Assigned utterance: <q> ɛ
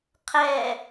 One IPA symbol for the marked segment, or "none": qʰ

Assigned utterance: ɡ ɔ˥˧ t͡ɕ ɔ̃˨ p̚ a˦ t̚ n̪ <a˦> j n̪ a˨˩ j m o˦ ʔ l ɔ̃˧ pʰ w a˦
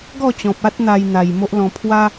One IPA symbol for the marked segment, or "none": a˧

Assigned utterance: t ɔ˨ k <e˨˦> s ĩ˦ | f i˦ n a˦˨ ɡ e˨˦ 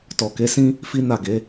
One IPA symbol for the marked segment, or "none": e˨˦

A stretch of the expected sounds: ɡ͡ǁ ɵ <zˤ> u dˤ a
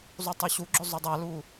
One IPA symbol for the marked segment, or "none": zˤ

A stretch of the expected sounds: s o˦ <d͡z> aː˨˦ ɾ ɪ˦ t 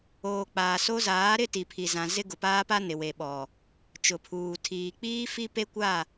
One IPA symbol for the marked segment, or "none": z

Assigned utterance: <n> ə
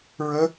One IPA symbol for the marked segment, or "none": ɹ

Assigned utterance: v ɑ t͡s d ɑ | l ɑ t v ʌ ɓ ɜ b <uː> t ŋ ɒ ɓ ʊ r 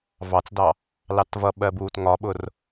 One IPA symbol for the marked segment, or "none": uː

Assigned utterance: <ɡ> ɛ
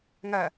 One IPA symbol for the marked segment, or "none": ŋ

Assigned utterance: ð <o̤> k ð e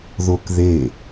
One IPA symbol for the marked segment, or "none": o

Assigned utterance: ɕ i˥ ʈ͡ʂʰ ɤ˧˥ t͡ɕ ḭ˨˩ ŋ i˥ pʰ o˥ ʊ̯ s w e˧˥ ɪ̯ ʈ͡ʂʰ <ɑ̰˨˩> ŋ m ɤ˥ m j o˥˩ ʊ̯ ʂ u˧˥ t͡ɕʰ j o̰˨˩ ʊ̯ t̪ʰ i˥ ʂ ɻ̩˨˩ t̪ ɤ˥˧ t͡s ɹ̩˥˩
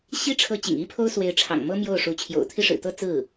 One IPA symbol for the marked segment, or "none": ɑ̰˨˩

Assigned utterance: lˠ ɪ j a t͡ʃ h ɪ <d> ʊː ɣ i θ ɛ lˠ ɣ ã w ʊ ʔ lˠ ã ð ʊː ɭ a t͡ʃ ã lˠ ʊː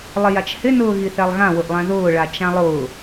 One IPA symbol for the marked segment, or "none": n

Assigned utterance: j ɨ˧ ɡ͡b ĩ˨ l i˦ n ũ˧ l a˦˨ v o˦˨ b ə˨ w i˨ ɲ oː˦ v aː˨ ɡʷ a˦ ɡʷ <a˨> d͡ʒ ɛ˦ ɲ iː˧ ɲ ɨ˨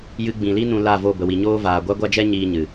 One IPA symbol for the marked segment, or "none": a˦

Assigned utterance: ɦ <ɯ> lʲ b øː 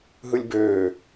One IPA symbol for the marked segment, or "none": ɯ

